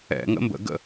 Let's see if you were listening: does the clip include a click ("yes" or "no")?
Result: no